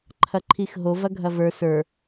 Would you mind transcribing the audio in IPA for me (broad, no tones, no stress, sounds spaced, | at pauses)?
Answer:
ǃʰ ɐ ǃʰ i x ɦ o v ɐ ɡʱ ɐ v ə˞ s ə˞